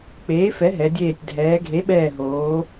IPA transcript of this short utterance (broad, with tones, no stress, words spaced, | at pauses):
k͡peː˩˥fɛ˩˥ɦɛ˩˧dʲeː˧˩tʲ dʱɛː˩˧ɡʱe˩˥ɓɛː˧˩ɦoː˩˧